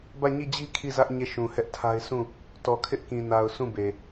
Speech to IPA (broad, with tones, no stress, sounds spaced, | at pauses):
b ä˦˨ ɲ i˦˨ d͡ʑ i˦ kʰ i˦˨ z ä˦ ʔ ɲ e˦˨ ʃ ũ˨ h ɛ˦ ʔ tʰ a˦ ɪ̯ s ũ˦˨ | t ɔ˨ kʰ ɪ˦ ʔ k ĩ˨ n a˨ ʊ̯ s ũ˦˨ b e˨